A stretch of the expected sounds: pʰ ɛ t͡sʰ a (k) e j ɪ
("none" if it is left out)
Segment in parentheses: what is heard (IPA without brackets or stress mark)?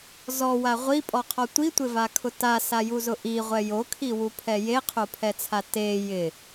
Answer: t